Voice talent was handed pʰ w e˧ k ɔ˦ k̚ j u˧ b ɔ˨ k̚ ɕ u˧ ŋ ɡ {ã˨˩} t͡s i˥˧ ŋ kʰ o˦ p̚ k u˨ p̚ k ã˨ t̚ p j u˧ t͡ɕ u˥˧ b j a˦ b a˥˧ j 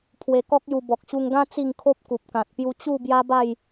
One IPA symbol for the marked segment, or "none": ã˦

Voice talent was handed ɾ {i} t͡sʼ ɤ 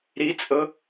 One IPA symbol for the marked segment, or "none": i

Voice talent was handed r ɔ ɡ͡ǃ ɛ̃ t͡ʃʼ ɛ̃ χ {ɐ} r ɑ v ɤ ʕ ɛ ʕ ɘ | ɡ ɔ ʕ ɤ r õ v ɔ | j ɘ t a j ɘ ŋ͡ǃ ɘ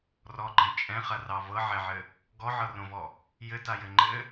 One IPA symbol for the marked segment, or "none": ɐ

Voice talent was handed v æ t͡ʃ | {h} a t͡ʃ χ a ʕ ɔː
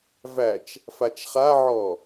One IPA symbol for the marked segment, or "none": f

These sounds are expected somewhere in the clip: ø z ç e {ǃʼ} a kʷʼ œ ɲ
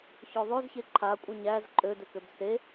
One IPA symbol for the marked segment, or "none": ǃʰ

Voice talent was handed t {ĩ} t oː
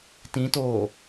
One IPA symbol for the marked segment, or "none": ĩ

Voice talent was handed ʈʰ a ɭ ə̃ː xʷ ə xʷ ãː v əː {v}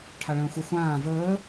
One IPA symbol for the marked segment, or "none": none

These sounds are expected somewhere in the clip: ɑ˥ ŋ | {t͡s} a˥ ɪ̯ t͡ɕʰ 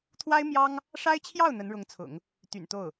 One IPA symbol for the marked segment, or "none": ʂ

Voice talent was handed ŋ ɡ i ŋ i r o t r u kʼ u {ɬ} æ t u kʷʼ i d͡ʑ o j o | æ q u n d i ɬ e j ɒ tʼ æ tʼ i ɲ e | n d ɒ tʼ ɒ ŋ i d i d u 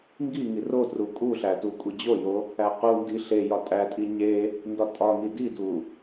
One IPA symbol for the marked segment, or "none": ɬ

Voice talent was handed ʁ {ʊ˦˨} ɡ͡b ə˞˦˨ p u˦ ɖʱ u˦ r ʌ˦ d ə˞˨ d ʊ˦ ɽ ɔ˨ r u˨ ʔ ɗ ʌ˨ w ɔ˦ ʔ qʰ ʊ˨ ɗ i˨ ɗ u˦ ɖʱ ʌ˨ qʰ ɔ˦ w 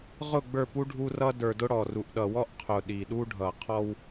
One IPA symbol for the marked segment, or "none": ʊ˦˨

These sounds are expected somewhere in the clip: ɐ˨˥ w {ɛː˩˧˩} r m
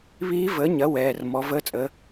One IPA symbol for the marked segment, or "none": ɛː˩˧˩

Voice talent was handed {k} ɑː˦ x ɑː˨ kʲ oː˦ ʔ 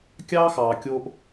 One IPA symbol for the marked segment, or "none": kʲ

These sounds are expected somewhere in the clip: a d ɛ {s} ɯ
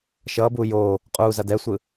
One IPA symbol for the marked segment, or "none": sʷ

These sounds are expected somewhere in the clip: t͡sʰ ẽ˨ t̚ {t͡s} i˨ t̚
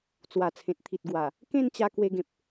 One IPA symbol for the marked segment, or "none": t̪ʰ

